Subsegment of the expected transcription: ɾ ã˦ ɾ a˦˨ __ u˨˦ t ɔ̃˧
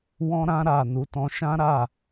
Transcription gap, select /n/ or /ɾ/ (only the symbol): n